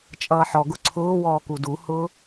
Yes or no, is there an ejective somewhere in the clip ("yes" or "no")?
yes